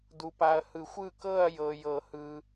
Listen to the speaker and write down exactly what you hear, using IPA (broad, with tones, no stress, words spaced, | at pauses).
du˨pa˨ɐ̯hɯ˨˩˦xʷ ɯ˥˧ kɤ˥˧ɐ̯ jɤ˨jɤ˨˩˦hɯ˨